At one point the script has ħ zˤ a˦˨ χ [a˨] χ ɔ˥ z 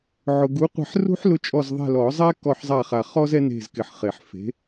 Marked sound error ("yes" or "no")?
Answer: no